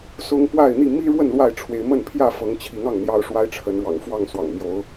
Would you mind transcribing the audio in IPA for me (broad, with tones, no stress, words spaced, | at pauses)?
sʊ˦ŋ pwa˥˨ɪ̯n̪i˥˨ mi˦ɻwə˥˨n lwa˥˨ɪ̯ʈ͡ʂʰwe˨˦ɪ̯mə˥˨n pʰjä˥˨fɤ˨˦ŋt͡ɕʰi˨˦ŋ ɑ˥˨ŋn̪jɑ˦ʊ̯ʂwa˦ɪ̯ ʈ͡ʂʰə˨˦nɻwɑ̰˨˩ŋfwɑ˥˨ŋ swɑ̰˨˩ŋmjo˨˦ʊ̯